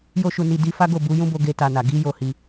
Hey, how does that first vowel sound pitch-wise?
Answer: high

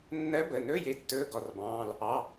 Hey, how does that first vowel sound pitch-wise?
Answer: rising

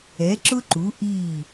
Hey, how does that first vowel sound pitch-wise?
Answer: rising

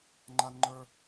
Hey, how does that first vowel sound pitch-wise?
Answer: high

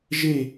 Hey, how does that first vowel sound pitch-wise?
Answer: falling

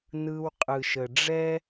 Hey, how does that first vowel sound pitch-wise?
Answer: low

